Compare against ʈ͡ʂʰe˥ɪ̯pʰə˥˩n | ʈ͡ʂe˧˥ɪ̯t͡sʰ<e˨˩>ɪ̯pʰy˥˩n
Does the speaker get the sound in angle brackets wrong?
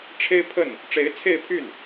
yes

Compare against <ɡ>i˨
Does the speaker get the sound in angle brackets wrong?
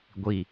yes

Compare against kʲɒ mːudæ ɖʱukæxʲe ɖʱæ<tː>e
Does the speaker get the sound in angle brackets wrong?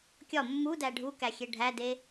yes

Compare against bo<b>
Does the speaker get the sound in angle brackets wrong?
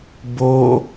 yes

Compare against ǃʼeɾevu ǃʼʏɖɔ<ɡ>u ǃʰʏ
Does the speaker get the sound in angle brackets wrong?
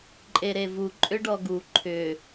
no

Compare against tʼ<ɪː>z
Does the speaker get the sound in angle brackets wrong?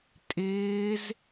no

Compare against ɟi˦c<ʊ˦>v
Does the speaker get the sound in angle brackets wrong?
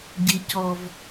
yes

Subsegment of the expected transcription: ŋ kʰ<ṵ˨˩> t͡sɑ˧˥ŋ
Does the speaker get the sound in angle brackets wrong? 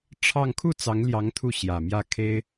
yes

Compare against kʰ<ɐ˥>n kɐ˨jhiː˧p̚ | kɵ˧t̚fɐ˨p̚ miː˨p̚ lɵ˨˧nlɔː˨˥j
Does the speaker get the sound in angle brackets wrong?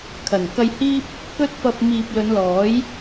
yes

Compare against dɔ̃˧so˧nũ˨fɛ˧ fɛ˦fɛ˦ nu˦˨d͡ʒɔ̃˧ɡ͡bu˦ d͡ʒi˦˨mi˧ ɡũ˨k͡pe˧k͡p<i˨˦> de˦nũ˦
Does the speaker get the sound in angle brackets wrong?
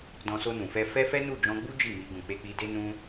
yes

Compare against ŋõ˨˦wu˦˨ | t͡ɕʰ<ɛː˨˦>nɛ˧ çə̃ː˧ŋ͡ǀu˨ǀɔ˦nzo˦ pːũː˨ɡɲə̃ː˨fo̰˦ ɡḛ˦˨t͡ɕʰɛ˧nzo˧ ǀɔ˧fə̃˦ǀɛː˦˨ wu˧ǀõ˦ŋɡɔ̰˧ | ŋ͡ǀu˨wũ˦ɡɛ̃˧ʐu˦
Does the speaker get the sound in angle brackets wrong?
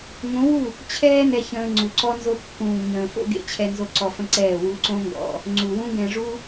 yes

